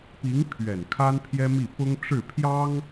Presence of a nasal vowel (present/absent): absent